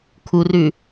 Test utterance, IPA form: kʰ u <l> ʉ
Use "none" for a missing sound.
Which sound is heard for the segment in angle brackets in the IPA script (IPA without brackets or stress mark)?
r